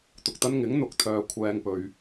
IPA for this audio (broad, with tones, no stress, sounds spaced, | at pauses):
t̪ ʊ˨ k̚ t̪ ɐ˥ n ŋ ɪ˨˥ ŋ n̪ ʊ˨˥ k̚ t̪ʰ œː˨ kʷʰ ɛː˥ ŋ p ɵ˧ ɥ